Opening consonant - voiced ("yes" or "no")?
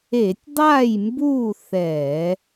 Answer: no